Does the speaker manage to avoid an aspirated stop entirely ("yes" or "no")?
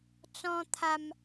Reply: no